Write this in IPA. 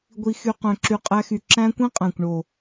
ɡʷ i˧ x y˧ q œ̃˧ ǁ y˧ qʼ æ˦ x y˧ ǁ æ̃˦ kʷ ĩ˦ qʼ æ̃˨ kʷ ɳ o˨

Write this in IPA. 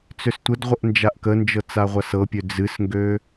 t͡s ø s tʷ ə d ʁʷ ə ʔ n d͡ʒ a ʔ k ə n d͡ʒ ɤ t͡s a ʁʷ a s ɤ pʲ ø d͡z ɨ s ŋ ɡ ø

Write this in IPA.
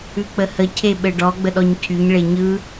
ʉ k͡p ə h ə cʰ e ɓ ɘ ɖ ɔ ɡ͡b ə ɗ ɔ ɲ cʰ y ɲ ɭ e ɲ ɯ

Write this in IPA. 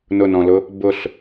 n ʊ n ɔ̃ l ʊ | b ʊ ɬ

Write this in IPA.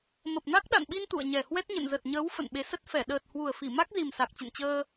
m ə˨˩ p̚ n a˦˥ k̚ ɗ a̰˧˨ n ɓ i˧ n t̪ ṵ˧˨ ə̯ ɲ ɛ˨˩ h w ɛ˦˥ t̚ ɲ ə̰˧˨ n z ə˨˩ t̚ ɲ əː˨˦ w f ə̰˧˨ n ɓ e˨˦ s ə˦˥ t̚ f ɛ˧˩ ɗ əː˨˩ t̚ h w u˨˩ ə̯ f i˧˩ m a˦˥ k̚ z i˨˩ m s a˨˩ k̚ t͡ɕ ə̰˧˨ n t͡ɕ əː˧

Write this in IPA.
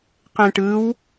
q ẽ ʈ ɯ w

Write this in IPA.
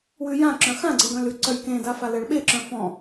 w ʉ j ã ǁ œ̃ x ã ɡ͡ǀ e ɡ œ̃ l ʉ ǀ œ j k ẽ d a f a l ɛ ɭ ɓ e ǁ œ̃ f ɔ̃

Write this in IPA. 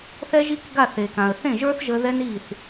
θ ɛ˦ ʒ i˦ k ɡ a˦˨ θ e˨ k ã˨ ə̯ θ ẽ˦˨ ʒ ə˞˦ θ ʒ ə˧ ð ɛ˦ n i˦˨ θ

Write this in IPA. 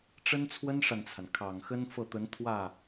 ʈ͡ʂ ə˥ n t͡sʰ w ə˥ n ʂ a˨ n t͡sʰ a˩ n kʰ ɑ˨˩ ŋ x ə˥ n f ɤ˥˩ t̪ ə˧˥ n t̪ʰ w ä˥˩

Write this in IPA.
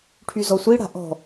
ʈʰ y z ɔ sʷ i ɽ a̤ ʔ ɔ̤

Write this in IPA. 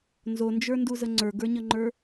n z o n d͡ʒ ə˞ n d u z ə ŋ͡ǀ ə˞ ɡ ə˞ ɲ ə ŋ͡ǃ ə˞

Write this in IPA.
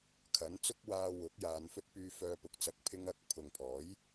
kʰ ɐ˨˥ n t͡s ʊ˥ k̚ w aː˧ w ʊ˨˥ k̚ j aː˨˧ n f ɵ˥ t̚ p yː˧ f œː˧ p ʊ˨ k̚ t͡s ɐ˧ k̚ pʰ ɪ˥ ŋ ɐ˧ k̚ pʰ ʊ˨ ŋ pʰ ɔː˨˥ j

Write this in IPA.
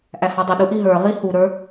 ʔ æ h ɑ dˤ ə ɗ u ʔ i ɦ ə˞ ʁ i h u ɾ ə˞

